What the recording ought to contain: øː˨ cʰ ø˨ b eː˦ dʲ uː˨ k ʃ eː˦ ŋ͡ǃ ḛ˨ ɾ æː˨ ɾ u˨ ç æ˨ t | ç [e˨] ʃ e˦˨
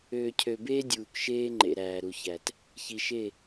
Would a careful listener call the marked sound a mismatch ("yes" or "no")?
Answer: yes